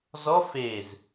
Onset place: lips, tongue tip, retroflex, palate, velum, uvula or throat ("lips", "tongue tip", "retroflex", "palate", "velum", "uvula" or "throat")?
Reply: tongue tip